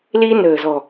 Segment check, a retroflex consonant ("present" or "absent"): absent